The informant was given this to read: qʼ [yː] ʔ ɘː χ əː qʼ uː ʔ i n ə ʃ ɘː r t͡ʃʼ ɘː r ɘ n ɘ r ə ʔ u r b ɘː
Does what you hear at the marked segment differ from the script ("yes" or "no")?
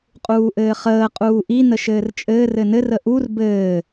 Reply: yes